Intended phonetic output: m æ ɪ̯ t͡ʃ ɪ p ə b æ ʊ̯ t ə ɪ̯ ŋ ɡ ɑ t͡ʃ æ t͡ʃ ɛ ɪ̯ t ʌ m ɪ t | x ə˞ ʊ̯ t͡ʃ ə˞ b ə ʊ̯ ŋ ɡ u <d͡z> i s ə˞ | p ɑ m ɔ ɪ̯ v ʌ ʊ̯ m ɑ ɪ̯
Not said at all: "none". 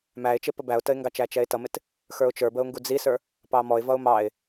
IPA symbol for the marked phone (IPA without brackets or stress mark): d͡z